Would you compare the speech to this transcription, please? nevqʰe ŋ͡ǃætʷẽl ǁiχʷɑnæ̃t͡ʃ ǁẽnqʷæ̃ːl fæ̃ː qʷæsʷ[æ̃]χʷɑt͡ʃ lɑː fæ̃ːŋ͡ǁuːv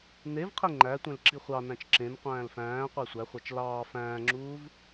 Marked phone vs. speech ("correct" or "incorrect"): incorrect